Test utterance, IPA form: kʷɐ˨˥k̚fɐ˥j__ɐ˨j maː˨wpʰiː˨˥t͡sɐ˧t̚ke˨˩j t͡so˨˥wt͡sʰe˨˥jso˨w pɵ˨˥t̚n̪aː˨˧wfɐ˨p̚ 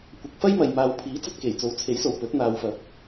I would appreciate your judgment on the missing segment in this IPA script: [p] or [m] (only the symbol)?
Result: m